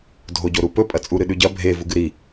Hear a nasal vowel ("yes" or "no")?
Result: no